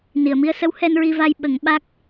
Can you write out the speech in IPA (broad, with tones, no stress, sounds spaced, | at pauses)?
n i˨˩˨ ə̯ m i˧ ə̯ s ə˧˥ w h ɛ˧ n ɹ i˧ v a˧ j ɓ ə˨˩˦ ŋ ɓ a˦˥ k̚